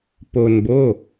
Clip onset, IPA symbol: p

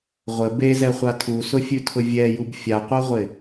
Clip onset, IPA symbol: ʁʷ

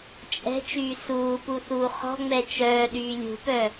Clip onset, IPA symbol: t͡ʃʼ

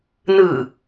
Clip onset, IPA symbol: n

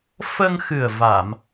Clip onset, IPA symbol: f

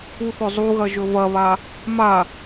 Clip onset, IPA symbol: u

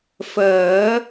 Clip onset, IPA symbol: f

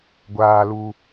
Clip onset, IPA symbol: ɡʷ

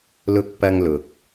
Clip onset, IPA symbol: l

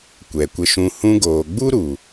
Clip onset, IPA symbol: kʷ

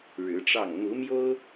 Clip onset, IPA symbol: ɻ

